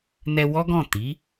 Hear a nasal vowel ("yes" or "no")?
yes